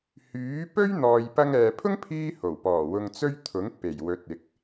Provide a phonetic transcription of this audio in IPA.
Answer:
h yː˨˥ p ɵ˥ ɥ n̪ ɔː˨ j p ɐ˧ ŋ ɛː˨ pʰ ʊ˥ ŋ pʰ iː˥ h o˨˩ w p ɔː˨˩ w ʊ˧ ŋ t͡s ɵ˥ ɥ t̪ʰ ʊ˨˥ ŋ p e˨˩ j w ɵ˨˥ t̚ ɪ˨˥ k̚

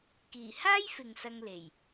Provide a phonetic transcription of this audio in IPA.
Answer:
k iː˨˩ h aː˥ j f ɪ˨ ŋ s ɐ˧ ŋ l e˨˩ j

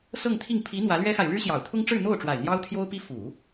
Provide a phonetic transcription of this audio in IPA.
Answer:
s ɤ˥˧ ŋ t̪ʰ i˥˩ ŋ pʰ i˧˥ n̪ w ä˧˥ l ɥ ɛ˥ x a˨ ɪ̯ ɻ ɻ̩˥ ɕ j ɑ˨˩ ʊ̯ t̪ʰ ʊ˥ ŋ ʈ͡ʂ ɻ̩˥˧ n̪ o˥˩ ʊ̯ ʈ͡ʂ w a˨˩ ɪ̯ n̪ j ɑ˥ ʊ̯ t̪ʰ j o˥ ʊ̯ p i˥ f u˨˩˦

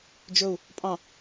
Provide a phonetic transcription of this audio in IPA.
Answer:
d͡ʒ ɵ u̯ | pʼ ɑ̃

